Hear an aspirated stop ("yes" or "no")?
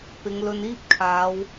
yes